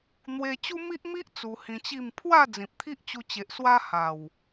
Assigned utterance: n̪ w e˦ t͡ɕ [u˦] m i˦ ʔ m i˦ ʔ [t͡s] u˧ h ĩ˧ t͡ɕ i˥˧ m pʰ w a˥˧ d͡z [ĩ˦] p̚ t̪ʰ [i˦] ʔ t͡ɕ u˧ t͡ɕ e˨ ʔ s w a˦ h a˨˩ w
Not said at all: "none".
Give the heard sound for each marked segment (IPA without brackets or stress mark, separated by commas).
u˦, t͡s, ĩ˨, i˦